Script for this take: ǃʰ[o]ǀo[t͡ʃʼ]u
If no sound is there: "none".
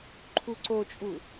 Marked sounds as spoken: u, t͡ʃʼ

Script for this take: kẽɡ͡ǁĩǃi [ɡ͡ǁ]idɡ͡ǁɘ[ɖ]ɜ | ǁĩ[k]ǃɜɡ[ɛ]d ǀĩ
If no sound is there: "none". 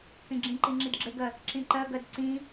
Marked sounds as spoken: ŋ͡ǁ, ɡ, none, ɜ

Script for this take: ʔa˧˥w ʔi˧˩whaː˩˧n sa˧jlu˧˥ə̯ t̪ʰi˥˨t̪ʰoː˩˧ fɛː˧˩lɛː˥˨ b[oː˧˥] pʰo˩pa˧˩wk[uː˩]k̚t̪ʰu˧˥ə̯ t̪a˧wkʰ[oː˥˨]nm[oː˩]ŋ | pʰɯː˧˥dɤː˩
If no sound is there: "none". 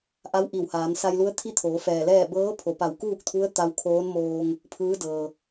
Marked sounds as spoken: ɤː˧˥, uː˥˨, oː˧˥, oː˧

